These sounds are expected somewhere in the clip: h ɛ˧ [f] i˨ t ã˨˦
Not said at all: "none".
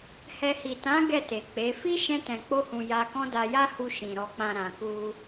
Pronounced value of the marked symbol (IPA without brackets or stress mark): h